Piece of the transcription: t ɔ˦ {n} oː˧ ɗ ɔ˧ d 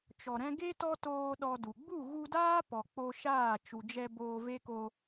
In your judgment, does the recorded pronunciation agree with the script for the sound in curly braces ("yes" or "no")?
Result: no